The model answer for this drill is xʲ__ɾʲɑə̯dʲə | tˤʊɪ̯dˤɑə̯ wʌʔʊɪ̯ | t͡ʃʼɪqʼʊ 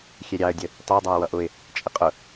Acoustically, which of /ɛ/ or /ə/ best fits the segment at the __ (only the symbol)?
ɛ